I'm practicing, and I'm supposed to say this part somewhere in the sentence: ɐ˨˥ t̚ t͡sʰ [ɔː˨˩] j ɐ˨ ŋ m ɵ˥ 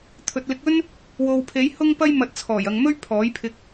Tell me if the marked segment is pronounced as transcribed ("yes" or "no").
yes